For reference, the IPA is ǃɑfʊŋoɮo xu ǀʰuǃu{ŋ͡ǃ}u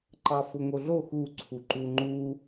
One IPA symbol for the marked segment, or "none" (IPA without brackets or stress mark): ŋ͡ǃ